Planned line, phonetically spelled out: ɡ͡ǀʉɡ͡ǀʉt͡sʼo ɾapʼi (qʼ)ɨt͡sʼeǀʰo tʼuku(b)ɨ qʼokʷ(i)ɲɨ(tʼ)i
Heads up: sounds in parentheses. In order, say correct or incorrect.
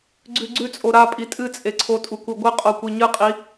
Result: incorrect, incorrect, correct, incorrect

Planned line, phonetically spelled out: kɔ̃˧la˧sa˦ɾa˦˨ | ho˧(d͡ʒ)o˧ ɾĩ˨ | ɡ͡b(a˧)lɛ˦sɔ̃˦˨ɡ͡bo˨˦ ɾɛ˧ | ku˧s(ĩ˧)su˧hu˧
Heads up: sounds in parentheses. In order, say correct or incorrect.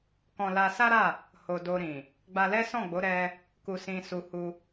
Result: incorrect, correct, correct

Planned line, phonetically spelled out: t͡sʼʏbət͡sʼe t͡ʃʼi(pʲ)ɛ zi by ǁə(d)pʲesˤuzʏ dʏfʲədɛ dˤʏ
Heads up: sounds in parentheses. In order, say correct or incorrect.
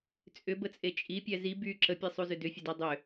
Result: correct, incorrect

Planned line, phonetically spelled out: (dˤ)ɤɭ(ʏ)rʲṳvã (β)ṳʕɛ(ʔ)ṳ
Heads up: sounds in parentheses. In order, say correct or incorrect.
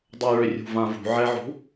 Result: correct, correct, incorrect, incorrect

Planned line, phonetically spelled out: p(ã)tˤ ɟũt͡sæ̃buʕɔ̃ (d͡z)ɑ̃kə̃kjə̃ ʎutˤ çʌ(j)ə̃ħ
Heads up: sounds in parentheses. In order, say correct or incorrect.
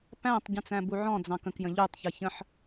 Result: incorrect, correct, incorrect

